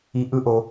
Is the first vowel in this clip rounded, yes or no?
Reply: no